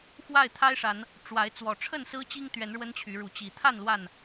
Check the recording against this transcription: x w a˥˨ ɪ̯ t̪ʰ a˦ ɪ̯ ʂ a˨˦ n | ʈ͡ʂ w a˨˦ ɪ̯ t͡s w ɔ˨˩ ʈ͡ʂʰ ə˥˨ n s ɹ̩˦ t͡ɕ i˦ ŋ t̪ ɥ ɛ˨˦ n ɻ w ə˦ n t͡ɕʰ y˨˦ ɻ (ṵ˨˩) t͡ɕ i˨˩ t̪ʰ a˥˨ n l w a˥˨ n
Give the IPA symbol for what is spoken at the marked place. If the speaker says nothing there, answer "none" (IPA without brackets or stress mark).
u˨˦